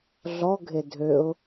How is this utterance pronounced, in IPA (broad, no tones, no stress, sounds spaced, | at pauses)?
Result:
ɮ ɔ ɡʱ e dʱ ø ʊ̯